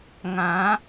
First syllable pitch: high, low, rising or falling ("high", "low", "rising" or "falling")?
rising